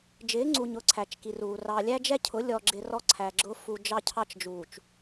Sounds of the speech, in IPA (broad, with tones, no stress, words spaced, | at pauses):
d͡ʒɪː˨˦ŋ͡ǀu˨ɲʊː˨ ǀʰæ˨t͡ʃki˨ruː˨ rɑ˨ lʲæ˦d͡ʒɛ˦cʰʊ˨˦ lʲɔ˨ɡ͡ǁɪ˨ rɔ˦ǀʰæ˨ɡ͡ǁʊː˦ fu˦ d͡ʒɑ˦cʰɑ˦t͡ʃ d͡ʒuː˨t͡ʃ